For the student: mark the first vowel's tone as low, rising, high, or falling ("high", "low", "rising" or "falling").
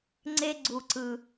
high